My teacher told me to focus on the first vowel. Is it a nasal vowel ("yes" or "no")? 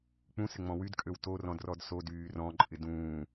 yes